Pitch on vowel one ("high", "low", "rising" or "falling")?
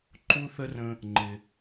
high